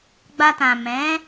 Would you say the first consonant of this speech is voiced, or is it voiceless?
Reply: voiced